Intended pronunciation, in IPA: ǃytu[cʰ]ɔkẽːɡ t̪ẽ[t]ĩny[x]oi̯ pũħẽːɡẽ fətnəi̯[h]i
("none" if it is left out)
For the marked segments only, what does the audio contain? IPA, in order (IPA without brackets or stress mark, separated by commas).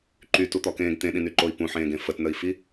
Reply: t̪, ɗ, ǃ, f